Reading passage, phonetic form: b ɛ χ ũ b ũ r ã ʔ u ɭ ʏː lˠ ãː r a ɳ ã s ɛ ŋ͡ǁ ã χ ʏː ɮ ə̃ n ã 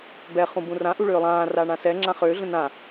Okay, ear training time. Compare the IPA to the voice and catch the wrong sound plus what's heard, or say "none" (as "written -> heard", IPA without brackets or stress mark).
none